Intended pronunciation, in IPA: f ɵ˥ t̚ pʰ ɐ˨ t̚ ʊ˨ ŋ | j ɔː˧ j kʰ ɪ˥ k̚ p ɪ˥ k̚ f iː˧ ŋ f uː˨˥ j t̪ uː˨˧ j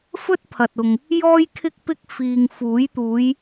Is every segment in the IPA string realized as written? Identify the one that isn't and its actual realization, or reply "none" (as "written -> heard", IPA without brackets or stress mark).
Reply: ɔː˧ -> ɔː˥